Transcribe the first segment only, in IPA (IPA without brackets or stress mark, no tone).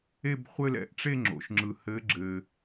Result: e